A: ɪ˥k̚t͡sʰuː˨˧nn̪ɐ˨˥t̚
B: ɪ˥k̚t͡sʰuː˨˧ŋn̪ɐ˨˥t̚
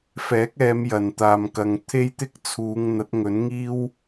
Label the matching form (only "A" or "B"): B